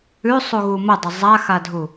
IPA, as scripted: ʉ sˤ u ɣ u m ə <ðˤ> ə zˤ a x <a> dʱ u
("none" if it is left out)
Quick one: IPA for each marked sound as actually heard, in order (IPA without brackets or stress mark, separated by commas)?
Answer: dˤ, a